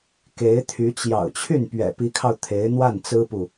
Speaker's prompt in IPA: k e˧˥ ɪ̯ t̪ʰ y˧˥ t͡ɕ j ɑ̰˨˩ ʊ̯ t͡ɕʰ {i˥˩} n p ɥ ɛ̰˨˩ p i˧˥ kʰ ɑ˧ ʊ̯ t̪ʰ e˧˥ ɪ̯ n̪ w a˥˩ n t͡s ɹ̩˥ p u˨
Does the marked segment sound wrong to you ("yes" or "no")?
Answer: yes